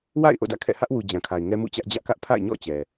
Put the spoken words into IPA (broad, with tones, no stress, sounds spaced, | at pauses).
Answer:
w a̰˦˨ ɪ̯ ʔ o̰˦˨ d ä̰˦˨ kʰ ɛ̰˦˨ h ä˦ ʔ w u˨ d͡ʑ ã˨ kʰ a˨ ɪ̯ ŋ ɛ˦ m ṵ˦˨ t͡ɕ ä˦ ʔ d͡ʑ ä˦ ʔ k ä˦ ʔ pʰ a̰˦˨ ɪ̯ ɲ ɔ̰˦˨ t͡ɕ ɛ˨